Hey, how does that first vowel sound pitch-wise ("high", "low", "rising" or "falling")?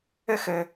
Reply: high